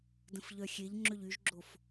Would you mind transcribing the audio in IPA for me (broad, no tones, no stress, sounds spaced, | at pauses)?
d ə̃ f ʎ œ xʲ e ʎ ŋ͡ǁ ø ʎ y ʒ ɡ͡ǁ o f